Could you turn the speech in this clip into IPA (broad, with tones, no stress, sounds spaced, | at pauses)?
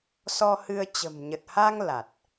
s ɔ˧ h ɨ˧ ə̯ t͡ɕ ə̤˨˩ m ɲ ə˨˩ t̚ h a˧ ŋ l a˨˩ t̚